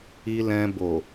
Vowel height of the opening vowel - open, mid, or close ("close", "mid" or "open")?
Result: close